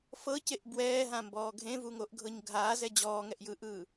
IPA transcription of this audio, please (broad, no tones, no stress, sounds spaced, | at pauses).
f ɤ c e ʔ b w ɛː ɦ ã m b ɔː ɡʱ ẽ v u ŋ o ʔ ɡʱ ɤ ɲ ɡʱ aː z ɛ d͡ʑ ɔː ŋ ɛ ʔ j ɯː ʔ ɯː